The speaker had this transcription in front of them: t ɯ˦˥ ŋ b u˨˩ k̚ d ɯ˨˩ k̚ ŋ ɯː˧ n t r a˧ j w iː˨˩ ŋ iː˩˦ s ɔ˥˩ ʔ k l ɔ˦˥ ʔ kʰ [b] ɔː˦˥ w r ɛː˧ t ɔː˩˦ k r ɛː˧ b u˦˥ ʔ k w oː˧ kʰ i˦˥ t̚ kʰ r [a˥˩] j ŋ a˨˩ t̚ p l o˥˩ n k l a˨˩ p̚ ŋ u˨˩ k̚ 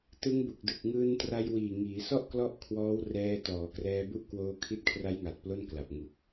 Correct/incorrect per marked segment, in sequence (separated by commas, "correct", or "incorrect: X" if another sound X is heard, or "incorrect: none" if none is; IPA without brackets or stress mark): incorrect: w, incorrect: a˦˥